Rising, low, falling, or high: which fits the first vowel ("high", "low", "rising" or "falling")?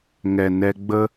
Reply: low